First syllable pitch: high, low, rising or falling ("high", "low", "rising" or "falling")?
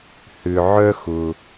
low